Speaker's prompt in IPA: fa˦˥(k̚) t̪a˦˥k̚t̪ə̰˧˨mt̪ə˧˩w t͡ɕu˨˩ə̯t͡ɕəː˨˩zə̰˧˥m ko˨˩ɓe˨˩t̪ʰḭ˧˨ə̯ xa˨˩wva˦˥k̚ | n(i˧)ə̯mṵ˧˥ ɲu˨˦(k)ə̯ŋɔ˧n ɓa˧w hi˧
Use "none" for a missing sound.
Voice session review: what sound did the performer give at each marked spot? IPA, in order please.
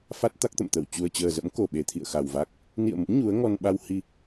t̚, ḭ˧˨, none

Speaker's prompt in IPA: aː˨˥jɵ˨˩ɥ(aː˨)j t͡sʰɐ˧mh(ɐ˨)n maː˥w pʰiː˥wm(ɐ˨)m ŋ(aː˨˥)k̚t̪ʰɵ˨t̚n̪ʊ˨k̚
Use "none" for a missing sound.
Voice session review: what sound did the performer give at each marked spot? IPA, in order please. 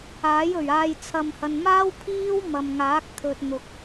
aː˧, ɐ˧, ɐ˨, aː˨˥

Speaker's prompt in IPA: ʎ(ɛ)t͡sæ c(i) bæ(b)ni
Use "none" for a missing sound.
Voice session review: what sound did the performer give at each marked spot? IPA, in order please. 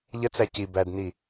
ə, i, d

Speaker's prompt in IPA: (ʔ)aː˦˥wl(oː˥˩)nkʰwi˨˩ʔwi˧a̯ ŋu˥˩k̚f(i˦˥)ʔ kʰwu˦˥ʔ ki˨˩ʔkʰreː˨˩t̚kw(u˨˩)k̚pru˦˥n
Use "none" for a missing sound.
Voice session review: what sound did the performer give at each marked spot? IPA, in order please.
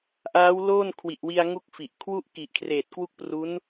ʔ, oː˥˩, i˨˩, u˥˩

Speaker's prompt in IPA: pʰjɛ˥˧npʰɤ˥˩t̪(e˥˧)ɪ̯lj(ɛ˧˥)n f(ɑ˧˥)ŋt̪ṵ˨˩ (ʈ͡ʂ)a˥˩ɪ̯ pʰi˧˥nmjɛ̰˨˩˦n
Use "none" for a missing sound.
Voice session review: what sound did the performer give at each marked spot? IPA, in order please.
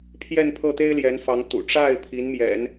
e˥, ɛ˧˥, ɑ˧˥, ʈ͡ʂ

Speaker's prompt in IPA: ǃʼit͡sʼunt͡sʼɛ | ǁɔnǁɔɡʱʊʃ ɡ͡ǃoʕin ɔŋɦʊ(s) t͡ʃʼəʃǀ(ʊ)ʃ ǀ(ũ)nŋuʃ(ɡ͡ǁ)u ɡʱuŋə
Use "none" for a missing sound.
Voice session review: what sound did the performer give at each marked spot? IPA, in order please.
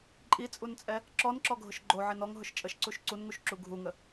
ʃ, u, u, ǁ

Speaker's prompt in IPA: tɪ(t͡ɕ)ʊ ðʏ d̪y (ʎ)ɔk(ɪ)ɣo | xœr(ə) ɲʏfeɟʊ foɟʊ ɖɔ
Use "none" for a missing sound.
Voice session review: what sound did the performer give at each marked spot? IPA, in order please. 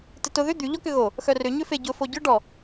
t, ʎ, ʏ, ʏ

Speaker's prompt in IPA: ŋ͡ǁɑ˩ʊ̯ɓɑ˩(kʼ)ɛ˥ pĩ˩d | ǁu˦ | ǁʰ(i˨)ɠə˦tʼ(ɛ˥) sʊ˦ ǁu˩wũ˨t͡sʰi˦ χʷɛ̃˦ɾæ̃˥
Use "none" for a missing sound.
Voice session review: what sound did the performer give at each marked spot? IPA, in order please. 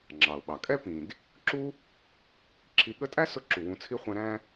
kʼ, i˨, æ˥

